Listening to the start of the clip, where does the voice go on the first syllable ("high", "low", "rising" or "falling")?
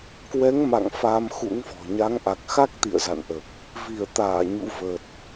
rising